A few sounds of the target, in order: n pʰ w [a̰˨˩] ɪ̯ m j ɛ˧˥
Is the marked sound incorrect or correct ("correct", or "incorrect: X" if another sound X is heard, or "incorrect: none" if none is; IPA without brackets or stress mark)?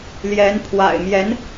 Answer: correct